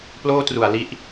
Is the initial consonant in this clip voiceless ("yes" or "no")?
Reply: yes